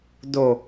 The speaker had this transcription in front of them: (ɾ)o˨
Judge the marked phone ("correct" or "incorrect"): incorrect